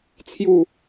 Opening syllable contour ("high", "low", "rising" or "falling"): falling